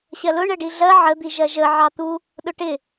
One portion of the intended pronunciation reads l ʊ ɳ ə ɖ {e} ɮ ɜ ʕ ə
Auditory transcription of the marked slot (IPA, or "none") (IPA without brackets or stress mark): i